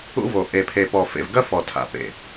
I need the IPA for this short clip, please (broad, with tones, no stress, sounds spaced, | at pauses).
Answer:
ṵ˦ v o˨ ʔ e˨ pʰ e˨ p ɔ˨ f ḛ˨ v ɡ ɐ˦ f ɔ˨ tʰ a̰˨ p ḛ˨